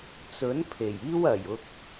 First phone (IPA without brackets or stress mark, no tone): t͡s